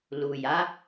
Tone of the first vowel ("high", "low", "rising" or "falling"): low